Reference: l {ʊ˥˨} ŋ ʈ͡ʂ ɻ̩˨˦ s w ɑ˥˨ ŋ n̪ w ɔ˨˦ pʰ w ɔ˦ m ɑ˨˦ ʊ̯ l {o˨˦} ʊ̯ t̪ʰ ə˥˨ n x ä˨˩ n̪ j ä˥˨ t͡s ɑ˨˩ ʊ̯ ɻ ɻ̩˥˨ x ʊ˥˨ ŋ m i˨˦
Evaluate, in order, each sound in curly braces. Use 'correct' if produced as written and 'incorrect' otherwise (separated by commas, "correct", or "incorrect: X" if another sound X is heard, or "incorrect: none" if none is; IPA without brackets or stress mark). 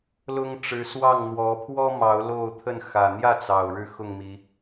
incorrect: ʊ˦, incorrect: o˥˨